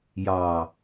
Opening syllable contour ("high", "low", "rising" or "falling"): low